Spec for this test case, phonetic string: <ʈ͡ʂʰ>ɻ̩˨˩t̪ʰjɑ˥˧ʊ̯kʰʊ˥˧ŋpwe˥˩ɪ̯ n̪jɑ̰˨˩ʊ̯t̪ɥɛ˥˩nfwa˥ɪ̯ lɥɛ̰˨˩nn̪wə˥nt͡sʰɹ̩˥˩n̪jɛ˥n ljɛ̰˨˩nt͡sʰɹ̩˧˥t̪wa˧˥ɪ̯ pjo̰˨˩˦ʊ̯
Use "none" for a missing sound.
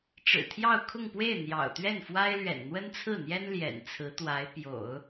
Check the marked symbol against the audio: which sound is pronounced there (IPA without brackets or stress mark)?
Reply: ʈ͡ʂ